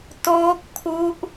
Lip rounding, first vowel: rounded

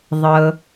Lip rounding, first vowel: unrounded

